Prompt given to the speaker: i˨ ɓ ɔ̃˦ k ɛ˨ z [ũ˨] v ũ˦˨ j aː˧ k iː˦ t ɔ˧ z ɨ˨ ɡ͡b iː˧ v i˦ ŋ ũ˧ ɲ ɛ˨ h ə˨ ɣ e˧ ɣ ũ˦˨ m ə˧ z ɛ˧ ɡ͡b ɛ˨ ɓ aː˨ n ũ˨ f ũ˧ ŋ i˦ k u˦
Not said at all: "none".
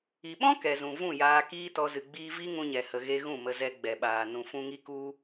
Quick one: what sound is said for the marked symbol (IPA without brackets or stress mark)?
ũ˨